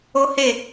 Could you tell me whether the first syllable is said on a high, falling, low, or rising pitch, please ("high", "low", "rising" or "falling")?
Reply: high